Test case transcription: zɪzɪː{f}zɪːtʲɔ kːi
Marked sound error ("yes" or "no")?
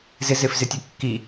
no